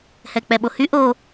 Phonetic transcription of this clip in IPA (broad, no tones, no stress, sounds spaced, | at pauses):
h ɛ k͡p ɛ ɓ o h y ʔ o